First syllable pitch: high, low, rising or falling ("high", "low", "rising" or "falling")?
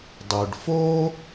low